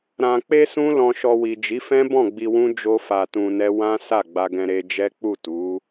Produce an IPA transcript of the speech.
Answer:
ɾ ã˨ k͡p e˧ s ũ˦ l ɔ̃˧ ʃ ɔ˧ w i˨ d͡ʒ i˨˦ f ɛ̃˦ b ɔ̃˦˨ ɡ͡b i˧ w ũ˦ d͡ʒ o˦ f a˧ t ũ˧ n ɛ˦ w ã˦ s a˦˨ ɡ͡b a˧ ɡ ɛ̃˧ ɾ e˧ d͡ʒ ɛ˦ k͡p u˦˨ t u˨˦

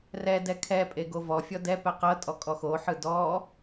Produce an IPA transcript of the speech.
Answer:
r ɛ d ɛ kʰ ɛ pʼ e ɡ o v ɔ fʲ ɔ d ɛ p ɛ q ɤ tʼ ɔ kʼ ɔ x o ħ ɯ d ɔ

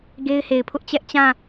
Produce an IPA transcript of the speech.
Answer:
ɡ e˦ ɪ̯ h e˨ ɪ̯ pʰ ʊ˦ ʔ t͡ɕ ɛ˦ ʔ t͡ɕ ã˦˨

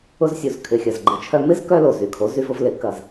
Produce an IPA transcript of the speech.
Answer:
ʊ˧ z sʲ u˩ z kʰ ɪ˩ xʲ ɐ˩ z ɡ͡ǃ ɪ˩˥ t͡ʃʰ œ˧ m ɪ˥ z k œ˥ l o˩ z y˩ kʰ o˩˥ z y˧ v ʊ˧ v l ɪ˩˥ k ɐ˩ z

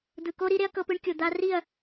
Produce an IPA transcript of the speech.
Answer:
d̪ ɯ˨ k o˦ ɾ i˦ ɾ e˦ ɐ̯ k ɤ˧ p ɯ˧ ɳ kʲ o˨ d̪ a˧ r i˦˨ ɐ̯

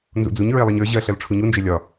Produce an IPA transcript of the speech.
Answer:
n z ṵ d͡z u ɲ ɹ e lˠ i ɲ ə˞ ʑ ɜ ɬ ɜ l ʈ͡ʂʰ u ɲ u n d͡ʒ e lʲ ɒ

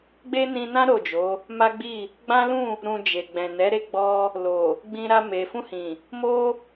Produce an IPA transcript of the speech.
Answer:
ɡ͡b e˦ n ĩ˧ n ã˦ ɾ o˦˨ d͡ʒ o˨˦ | m a˦ ɡ͡b i˦˨ | ɡ͡b ã˦ l ũ˦˨ | ɾ ũ˧ d͡ʒ e˨ ɡ͡b ɛ̃˨ n ɛ˨˦ ɾ e˦˨ ɡ͡b ɔ˧ | l o˨ | ɡ͡b ĩ˧ ɾ a˧ m e˨ f ũ˧ h ĩ˨ | m o˦

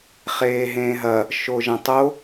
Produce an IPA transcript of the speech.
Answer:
χ eː ɦ ẽː ɦ ɐ | ʃ o ʒ ɐ̃ tˤ o

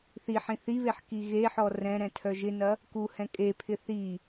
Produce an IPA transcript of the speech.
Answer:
θ i ħ ĩ θ i β e ħ k i ɣ e ħ ɔ r ɛ̃ ɾ ɛ̃ tʰ œ ʒ ɪ n ɐ | k u h ɛ̃ kʼ e pʰ ɪ θ i

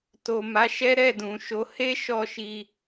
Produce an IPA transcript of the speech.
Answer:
t o˨ m a˨˦ ʃ ɛ˦ ɾ ɛ˦˨ d ũ˨ ʃ o˨˦ h e˦ ʃ ɔ˦˨ ʃ i˧

